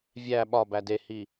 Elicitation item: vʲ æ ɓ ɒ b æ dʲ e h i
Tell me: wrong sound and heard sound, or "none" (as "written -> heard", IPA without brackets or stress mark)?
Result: dʲ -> d